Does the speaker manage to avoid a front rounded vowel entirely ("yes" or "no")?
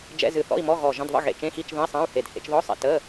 yes